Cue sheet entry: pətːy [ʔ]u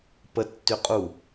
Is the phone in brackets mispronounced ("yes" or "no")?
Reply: yes